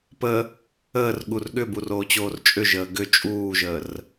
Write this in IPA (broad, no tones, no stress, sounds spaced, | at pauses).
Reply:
p ə | əː r ɠ u r ɠ ʏ b u r oː t͡ɕ oː r t͡ʃʼ ʏ ʒ əː ɡ ʏ t͡ʃʼ uː ʒ əː r